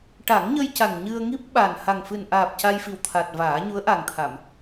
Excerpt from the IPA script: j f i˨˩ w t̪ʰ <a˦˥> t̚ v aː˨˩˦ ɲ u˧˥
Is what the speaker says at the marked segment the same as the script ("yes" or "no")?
no